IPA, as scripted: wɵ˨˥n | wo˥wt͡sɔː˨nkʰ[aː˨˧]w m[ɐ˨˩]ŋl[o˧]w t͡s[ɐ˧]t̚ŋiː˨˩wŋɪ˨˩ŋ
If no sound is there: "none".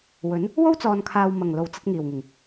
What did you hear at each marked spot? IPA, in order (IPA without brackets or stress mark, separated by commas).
aː˨, ɐ˨˩, o˨˩, ɐ˧